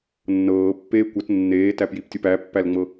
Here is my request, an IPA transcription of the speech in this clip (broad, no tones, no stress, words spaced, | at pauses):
nːɤːpːeː kʷɤt nːeːtæpjiptʲop æpːælŋ͡mɤ